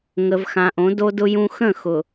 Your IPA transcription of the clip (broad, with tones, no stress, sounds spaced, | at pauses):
ŋ ə˨ v x ã˨ ʔ õ˨˦ d o˦ d ʊ˦ j ũ˦ x ə̃˦˨ x ʊ˨